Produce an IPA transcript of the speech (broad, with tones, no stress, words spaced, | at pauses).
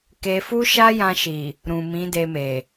ke˧fu˦ ʃa˦jã˧ʃi˨ | ɾũ˨mĩ˨˦de˧me˨